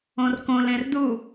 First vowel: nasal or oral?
nasal